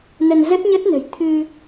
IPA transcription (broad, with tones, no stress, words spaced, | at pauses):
nə˧nzə˦˥t̚ɲə˦˥t̚nə̤˨˩j t̪ʰɨ˧